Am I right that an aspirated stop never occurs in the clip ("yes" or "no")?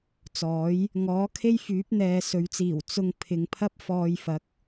no